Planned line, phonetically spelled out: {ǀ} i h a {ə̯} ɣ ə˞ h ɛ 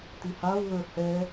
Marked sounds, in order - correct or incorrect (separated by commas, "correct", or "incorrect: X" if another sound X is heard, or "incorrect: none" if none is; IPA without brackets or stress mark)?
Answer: incorrect: t̪, incorrect: ʊ̯